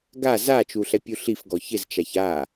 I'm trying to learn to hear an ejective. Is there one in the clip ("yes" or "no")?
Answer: no